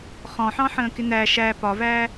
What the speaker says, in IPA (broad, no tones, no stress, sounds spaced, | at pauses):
χ ɔ̃ ħ ɑ̃ ħ ə̃ː k ɪ n̪ æ ʃ æ p ɒ v æ